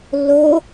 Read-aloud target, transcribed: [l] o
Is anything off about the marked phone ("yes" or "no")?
yes